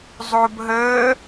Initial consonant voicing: voiced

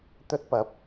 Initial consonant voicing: voiceless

